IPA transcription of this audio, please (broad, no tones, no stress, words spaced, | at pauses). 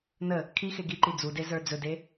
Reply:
nə | kʰixe ɡiǃi d͡zude zə˞d͡zɵde